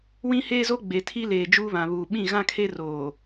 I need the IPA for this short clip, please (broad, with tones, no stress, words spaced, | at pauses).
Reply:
wĩ˦heː˦zo˦ ɡ͡be˨ tʰi˦leː˨ d͡ʒuː˦βã˨βuː˨ ɓĩ˦˨ɣã˦kʰe˦ roː˨